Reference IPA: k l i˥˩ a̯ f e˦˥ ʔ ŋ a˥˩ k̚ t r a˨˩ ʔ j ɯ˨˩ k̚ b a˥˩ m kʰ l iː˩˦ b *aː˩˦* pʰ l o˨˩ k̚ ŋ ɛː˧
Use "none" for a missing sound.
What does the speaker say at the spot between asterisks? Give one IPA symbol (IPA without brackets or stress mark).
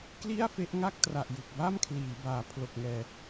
aː˩˦